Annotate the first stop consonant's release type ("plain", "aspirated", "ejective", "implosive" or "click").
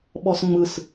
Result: implosive